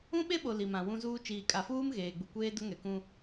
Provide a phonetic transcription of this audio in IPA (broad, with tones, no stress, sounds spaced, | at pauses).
ũ˦ ɓ e˦ ɓ o˨ l i˨ m ã˨ w ũ˦ z uː˦ t͡ʃ iː˨ kʼ a˨ f uː˦ m ɣ eː˨ ɡ͡b u˨ kʷ eː˦ d ʊ˦ ŋ ɛ˨ k ũ˦